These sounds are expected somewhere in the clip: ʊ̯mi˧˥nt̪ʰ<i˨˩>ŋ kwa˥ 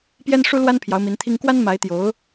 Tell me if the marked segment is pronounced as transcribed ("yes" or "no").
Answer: no